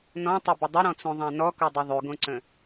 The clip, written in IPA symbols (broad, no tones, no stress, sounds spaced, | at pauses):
n ɔ̃ tˤ ɵ b ə dˤ ɪ ɾ ɔ̃ t͡s õ ðˤ ã n ɔ k o dˤ ɵ ðˤ ʉ ɡ õ ǀ ə̃